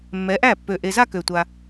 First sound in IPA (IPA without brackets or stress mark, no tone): mː